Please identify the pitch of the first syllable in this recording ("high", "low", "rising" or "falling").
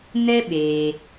high